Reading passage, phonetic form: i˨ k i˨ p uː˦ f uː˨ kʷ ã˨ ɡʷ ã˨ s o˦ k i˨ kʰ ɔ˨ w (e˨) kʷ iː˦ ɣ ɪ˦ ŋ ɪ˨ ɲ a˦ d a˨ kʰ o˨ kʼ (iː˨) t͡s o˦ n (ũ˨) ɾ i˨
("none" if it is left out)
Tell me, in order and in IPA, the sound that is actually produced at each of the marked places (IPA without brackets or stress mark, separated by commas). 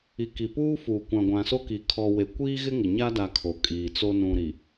e˨, iː˨, ũ˨